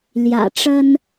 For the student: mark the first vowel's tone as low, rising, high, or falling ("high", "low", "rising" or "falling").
low